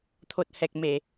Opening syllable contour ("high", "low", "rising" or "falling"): low